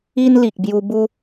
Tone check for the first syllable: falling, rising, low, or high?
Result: high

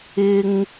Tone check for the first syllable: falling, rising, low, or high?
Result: high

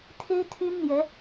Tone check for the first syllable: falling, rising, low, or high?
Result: high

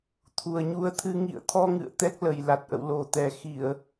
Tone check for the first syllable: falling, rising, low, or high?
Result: low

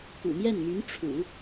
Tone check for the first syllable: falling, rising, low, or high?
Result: low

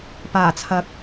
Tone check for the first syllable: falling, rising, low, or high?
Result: low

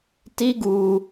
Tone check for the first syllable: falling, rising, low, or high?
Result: high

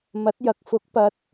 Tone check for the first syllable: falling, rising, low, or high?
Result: rising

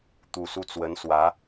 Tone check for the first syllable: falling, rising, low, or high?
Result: low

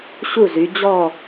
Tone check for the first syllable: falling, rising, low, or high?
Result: falling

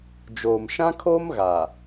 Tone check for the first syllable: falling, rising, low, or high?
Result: low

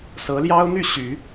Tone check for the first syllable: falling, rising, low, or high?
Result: rising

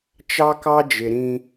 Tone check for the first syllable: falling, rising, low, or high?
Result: high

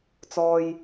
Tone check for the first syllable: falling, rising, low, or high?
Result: low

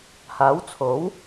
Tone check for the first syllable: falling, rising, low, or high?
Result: rising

